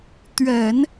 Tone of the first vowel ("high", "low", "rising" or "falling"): low